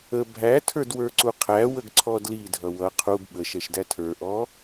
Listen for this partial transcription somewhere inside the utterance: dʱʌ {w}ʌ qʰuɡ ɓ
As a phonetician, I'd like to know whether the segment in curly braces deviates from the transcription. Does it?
no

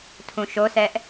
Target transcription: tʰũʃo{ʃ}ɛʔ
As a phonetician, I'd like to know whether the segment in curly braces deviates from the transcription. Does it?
yes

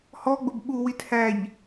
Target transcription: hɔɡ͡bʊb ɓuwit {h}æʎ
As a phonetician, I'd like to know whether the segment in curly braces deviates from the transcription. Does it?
no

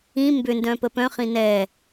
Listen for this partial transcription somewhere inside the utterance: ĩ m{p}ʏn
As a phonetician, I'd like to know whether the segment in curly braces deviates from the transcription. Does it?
yes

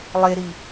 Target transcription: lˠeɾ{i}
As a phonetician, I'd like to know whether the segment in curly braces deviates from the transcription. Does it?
no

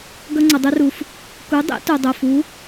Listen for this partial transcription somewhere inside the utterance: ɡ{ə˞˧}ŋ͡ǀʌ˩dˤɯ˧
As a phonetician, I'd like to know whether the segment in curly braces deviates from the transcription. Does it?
yes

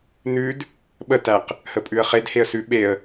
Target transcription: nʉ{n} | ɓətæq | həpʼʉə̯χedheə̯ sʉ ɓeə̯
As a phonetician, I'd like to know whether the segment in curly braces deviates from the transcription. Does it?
yes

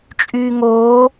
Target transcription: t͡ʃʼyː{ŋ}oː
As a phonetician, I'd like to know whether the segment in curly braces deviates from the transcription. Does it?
no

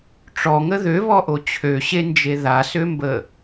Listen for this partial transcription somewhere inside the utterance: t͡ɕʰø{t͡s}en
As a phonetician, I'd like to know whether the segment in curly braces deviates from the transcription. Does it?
yes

